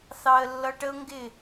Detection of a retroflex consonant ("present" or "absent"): present